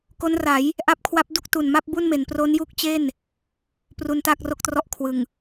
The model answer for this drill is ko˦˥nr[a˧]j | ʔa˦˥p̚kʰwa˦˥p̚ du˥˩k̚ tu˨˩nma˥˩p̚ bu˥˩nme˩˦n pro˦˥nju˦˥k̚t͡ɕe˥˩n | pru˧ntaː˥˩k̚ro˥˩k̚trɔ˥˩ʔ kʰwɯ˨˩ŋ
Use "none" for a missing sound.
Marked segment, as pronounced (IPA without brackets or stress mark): a˩˦